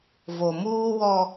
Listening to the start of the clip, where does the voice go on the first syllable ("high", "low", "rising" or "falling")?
low